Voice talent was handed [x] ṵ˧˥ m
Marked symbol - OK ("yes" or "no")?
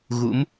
no